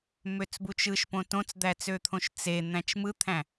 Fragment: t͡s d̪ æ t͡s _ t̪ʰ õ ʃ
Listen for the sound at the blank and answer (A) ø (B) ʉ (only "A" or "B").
A